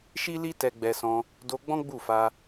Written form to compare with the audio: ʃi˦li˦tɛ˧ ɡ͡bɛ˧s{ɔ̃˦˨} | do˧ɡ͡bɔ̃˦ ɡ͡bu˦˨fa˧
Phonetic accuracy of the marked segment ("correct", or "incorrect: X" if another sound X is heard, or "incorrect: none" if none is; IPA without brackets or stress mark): incorrect: ɔ̃˧